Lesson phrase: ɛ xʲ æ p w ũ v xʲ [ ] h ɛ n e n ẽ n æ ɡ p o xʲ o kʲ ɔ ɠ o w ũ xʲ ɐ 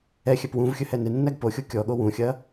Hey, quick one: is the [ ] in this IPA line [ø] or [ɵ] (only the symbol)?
ɵ